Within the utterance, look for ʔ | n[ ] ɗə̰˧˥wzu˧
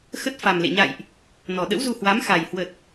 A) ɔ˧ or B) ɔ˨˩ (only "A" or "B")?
B